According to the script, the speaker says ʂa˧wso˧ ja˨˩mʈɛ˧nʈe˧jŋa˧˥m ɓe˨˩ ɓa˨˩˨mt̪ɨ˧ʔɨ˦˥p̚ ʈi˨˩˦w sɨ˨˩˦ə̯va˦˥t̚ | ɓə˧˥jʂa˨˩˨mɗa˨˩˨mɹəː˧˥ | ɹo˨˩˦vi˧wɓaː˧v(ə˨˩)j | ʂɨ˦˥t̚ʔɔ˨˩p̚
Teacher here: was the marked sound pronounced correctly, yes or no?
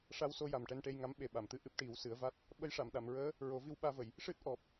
no